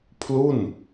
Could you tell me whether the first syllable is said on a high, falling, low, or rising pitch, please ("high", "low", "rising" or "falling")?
falling